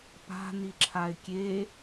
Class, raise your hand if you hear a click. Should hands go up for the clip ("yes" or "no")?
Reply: yes